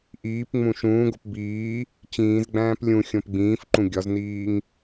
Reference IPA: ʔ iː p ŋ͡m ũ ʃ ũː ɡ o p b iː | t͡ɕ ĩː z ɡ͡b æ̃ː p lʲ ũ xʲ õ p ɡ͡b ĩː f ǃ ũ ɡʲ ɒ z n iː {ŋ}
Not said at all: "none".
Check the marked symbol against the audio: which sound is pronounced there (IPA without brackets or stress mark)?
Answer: ŋ